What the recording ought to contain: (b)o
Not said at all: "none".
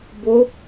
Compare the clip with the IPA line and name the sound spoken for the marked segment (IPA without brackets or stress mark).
b